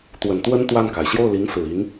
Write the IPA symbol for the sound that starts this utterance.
t̪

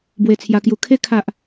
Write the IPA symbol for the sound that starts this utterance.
b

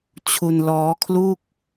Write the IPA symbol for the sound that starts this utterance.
t͡ɕʰ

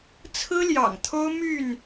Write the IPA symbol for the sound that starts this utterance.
t͡sʰ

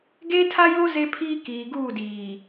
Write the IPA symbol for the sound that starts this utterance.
ɡ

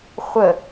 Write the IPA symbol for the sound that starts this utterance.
χʷ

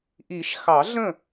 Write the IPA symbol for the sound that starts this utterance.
ʔ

